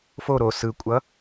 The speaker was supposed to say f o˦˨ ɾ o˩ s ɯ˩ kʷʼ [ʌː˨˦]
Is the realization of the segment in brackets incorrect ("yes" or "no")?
yes